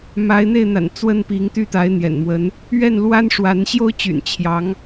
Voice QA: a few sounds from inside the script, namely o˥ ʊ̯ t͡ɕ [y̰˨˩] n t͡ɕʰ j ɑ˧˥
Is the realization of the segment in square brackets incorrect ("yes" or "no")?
no